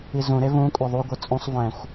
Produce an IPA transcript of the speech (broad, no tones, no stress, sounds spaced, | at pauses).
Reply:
i z ũ ɾ e v ũ kʷʼ ɛ ðˤ u ɡʷ ɯ t͡sʼ ũ sˤ v ɛ̃ xʷ